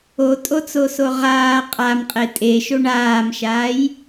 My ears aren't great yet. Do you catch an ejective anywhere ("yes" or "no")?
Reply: yes